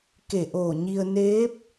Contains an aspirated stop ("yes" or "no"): no